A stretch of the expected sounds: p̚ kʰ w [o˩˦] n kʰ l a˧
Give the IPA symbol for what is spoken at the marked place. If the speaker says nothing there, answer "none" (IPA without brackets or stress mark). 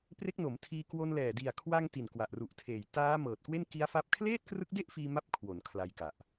o˩˦